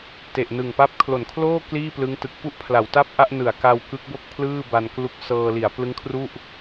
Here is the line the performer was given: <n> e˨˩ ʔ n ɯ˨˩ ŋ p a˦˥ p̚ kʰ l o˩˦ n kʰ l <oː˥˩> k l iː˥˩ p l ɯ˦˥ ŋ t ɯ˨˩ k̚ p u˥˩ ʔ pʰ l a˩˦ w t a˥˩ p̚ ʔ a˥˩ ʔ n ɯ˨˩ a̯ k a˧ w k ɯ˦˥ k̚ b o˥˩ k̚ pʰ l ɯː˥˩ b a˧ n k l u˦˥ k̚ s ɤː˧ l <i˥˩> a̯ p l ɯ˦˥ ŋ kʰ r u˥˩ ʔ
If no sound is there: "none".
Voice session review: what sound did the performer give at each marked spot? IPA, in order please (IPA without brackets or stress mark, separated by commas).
t, oː˥˩, i˩˦